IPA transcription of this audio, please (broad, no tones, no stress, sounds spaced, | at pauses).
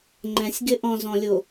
ŋ͡ǃ ɛ̃ sʲ ɡ ɪ ʔ ɔ̃ z ɔ̃ lʲ o